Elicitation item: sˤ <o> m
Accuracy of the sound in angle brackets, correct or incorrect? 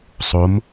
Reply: correct